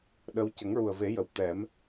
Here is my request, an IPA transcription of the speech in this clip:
ɗ ə˧˥ w c ə˨˩˦ ŋ ɹ u˨˩ ə̯ v e˨˩˦ j ə˨˩˨ w t̪ ɛ˨˩˦ m

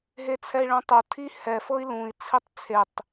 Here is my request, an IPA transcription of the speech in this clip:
ɦ e t͡sʰ ɛ i̯ ɭ õ tˤ o tʰ i h ɛ f ɤ i̯ l ũ i̯ t͡sʰ i tˤ t͡sʰ e tˤ

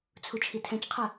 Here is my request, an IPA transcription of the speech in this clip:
t͡sʰ u t͡ʃʰ i tʰ ɛ̃ t͡ʃ qʰ ə

